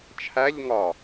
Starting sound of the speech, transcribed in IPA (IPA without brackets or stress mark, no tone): t͡ʃʰ